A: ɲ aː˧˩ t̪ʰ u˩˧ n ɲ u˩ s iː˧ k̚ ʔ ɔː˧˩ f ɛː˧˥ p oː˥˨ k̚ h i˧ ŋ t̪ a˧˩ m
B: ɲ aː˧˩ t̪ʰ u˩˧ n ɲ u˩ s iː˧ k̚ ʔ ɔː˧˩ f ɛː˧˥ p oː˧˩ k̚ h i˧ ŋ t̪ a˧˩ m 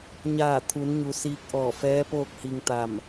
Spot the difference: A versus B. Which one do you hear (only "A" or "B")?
A